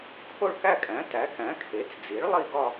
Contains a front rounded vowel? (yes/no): no